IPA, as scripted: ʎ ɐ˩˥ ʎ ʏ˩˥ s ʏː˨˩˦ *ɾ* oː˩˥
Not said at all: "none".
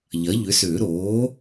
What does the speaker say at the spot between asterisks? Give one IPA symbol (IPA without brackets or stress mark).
ɾ